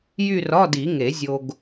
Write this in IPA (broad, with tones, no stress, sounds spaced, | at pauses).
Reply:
j y˥˧ r ɒ˧˥˧ d i˨˩˦ ŋ e˨˩˦ zʲ o˧ ɡ